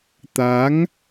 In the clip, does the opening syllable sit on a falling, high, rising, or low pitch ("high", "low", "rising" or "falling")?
rising